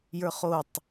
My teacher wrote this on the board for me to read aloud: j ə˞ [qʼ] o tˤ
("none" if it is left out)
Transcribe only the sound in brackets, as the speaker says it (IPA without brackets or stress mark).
χ